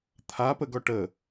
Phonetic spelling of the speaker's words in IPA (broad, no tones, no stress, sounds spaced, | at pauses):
t̪ʰ a p ə ɡ ɔ ʈ ə